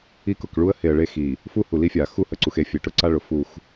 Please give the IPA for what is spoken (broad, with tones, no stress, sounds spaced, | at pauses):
i˦˨ k ʊ˨ k ɭ u˦ ə̯ h e˨ ə̯ ɭ e˦ x i˨ | f u˦ h u˨ l i˦ fʲ a˨ x u˦ h ə˨ ǀ u˨ x e˦˨ fʲ e˨ ʈ ʊ˦ ǀ a˦ ɭ ʊ˨ f u˦˨ x